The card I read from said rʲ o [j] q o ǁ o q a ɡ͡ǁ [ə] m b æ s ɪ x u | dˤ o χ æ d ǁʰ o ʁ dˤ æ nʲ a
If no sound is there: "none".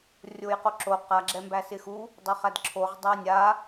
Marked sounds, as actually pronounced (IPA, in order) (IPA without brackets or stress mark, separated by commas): j, ɛ